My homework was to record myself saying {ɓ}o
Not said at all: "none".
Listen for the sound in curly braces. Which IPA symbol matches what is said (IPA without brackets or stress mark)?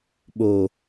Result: ɓ